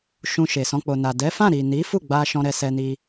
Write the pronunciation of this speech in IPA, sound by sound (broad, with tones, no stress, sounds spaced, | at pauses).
ʃ ũ˧ ʃ e˨ s ɔ̃˧ k͡p o˨ n a˨ d ɛ˨˦ f ã˦˨ ɾ i˨ n i˨˦ f u˦˨ ɡ͡b a˧ ʃ ɔ̃˧ ɾ ɛ˧ s ɛ˧ n i˧